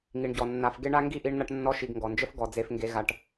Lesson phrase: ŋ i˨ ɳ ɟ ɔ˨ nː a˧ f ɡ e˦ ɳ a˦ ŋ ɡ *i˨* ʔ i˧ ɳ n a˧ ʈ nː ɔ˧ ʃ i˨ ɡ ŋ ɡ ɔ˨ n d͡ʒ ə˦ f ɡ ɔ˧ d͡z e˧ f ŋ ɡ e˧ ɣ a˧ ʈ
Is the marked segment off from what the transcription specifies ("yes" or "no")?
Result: yes